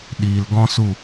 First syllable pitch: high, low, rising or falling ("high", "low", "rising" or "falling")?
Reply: low